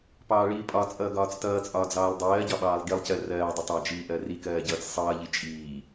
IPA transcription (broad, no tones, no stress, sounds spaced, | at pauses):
p ɑː ɭ iː pʼ ɒ t͡sʼ ʌː ɡ ɒː t͡s t ʌː t͡sʼ ɒː d͡z ɑː lˠ dˤ ɜː ɟ ɒ ɓ ɑː lˠ ɡ i lˠ c ɜ r ɜː dˤ ɪ tˤ ɑ d͡ʒ iː ʔ ɜ r i k ɜː ɟ ʌː t͡s sˤ ʌː ʎ i t͡ʃʼ iː